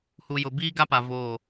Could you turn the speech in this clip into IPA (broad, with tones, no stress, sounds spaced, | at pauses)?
h u˨ j ʊ˨ b iː˦ ɡ a˦ p a˨ v oː˦˨